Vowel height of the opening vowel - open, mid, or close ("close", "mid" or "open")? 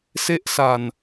mid